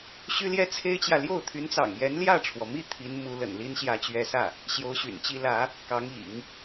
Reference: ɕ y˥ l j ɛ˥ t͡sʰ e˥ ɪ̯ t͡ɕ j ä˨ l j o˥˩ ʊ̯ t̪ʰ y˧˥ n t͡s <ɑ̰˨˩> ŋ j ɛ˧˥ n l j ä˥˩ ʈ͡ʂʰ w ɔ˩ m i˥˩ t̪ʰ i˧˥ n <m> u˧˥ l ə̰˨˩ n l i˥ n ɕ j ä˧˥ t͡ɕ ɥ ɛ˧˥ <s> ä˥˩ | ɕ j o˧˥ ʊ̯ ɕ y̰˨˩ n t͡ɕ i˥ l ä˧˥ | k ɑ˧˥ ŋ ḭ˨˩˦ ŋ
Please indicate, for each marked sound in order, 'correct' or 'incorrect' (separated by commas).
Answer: correct, correct, correct